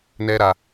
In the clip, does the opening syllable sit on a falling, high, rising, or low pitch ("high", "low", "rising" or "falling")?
high